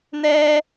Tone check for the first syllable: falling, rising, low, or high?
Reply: low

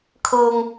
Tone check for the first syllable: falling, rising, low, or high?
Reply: low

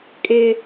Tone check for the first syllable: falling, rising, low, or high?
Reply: high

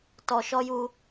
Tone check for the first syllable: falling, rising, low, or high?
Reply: low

